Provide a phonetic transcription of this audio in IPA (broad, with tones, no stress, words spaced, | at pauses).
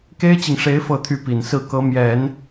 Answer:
ke˥ɪ̯t͡ɕi˨ŋʂe˧˥ɪ̯ fɤ˥˧t̪ʰy˥˩pi˨˩n sɹ̩˥˩ kɤ˧˥mjɛ˨˩˦n